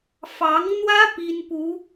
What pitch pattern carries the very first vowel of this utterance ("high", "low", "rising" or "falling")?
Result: rising